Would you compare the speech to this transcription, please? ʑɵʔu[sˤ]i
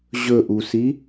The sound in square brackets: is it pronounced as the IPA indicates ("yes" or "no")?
no